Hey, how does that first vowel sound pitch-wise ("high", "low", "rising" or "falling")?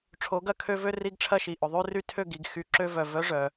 rising